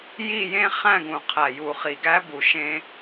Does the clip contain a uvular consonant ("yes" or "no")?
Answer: yes